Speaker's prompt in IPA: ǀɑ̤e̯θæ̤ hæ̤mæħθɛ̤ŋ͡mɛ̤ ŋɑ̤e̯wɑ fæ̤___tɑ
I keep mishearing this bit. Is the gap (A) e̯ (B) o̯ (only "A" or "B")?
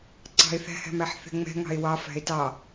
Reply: A